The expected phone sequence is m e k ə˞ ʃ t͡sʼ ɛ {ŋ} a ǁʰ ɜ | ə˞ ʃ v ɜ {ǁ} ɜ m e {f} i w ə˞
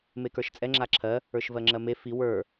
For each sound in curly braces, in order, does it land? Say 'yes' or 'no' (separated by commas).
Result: no, no, yes